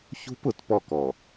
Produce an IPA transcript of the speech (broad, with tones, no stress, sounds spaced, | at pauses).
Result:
ç ṳ˦ p ʊ˨ t p ɔ˦˨ k ɔ˨